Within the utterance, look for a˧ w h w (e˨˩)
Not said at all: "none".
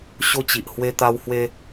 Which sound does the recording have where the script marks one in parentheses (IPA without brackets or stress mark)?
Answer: e˦